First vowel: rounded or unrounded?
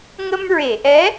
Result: unrounded